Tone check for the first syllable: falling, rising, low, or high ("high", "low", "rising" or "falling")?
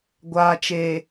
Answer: low